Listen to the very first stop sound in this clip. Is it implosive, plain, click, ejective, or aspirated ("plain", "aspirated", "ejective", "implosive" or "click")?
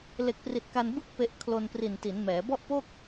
plain